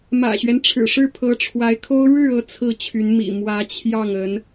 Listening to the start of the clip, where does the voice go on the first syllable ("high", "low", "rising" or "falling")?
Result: low